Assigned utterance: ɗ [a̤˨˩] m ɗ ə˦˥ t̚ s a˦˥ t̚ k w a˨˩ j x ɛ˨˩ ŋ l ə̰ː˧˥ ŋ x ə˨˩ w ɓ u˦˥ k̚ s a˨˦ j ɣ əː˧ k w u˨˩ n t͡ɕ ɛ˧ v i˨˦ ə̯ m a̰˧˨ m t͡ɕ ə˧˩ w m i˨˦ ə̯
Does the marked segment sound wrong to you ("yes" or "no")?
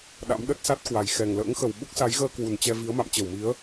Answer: yes